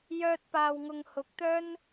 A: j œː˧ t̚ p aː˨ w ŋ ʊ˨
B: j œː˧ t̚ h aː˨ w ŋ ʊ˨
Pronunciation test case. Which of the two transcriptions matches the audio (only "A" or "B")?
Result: A